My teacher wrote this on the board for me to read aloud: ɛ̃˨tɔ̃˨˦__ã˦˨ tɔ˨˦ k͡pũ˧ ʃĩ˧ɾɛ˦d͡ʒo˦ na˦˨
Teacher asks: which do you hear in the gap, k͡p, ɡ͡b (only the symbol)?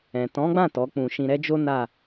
ɡ͡b